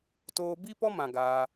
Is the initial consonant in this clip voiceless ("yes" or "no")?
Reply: yes